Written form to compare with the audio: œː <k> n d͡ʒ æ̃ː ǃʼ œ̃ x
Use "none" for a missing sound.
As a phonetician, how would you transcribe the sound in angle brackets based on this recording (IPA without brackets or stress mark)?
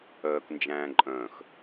k